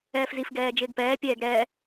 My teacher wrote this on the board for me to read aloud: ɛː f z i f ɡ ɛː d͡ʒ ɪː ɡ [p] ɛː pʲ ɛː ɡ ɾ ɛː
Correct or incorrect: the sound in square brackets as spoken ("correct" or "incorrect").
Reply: correct